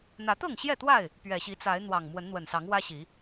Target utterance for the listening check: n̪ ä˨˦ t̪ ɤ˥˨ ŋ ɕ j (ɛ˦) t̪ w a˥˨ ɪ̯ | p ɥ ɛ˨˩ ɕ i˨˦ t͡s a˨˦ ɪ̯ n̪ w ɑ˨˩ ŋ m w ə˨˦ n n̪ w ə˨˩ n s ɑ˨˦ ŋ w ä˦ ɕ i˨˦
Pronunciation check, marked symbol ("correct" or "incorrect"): incorrect